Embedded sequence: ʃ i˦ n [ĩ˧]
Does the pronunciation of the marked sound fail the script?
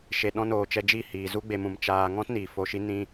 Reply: no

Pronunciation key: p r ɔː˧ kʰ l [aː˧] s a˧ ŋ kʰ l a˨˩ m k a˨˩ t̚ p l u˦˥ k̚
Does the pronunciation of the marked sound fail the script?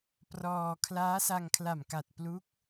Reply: yes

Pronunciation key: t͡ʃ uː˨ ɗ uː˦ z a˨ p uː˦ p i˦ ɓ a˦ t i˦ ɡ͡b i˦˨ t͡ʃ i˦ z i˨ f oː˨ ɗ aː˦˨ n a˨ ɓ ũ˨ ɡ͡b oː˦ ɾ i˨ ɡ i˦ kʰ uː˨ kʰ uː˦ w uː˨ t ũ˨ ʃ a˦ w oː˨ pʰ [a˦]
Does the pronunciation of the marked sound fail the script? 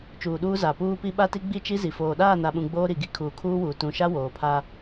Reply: no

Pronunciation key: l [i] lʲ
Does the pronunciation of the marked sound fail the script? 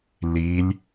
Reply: no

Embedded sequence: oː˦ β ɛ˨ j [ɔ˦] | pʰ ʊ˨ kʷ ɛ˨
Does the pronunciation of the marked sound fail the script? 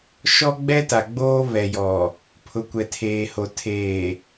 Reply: yes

